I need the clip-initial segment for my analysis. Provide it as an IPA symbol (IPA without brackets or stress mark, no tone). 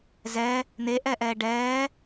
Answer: z